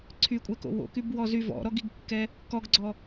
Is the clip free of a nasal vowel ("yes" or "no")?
yes